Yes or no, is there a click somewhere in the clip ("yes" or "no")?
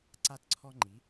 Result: yes